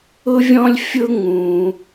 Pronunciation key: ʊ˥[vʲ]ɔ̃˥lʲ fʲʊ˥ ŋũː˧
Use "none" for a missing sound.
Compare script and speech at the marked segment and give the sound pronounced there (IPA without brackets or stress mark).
vʲ